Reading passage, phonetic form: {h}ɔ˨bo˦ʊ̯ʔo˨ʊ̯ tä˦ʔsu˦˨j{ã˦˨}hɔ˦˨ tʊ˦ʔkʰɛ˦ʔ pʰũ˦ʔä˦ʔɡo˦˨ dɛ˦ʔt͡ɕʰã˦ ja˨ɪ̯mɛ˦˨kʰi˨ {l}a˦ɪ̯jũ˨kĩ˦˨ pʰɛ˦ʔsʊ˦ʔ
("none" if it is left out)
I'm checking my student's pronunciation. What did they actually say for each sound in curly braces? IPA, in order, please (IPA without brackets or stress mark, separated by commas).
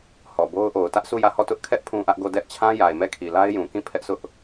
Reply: h, ä˦˨, l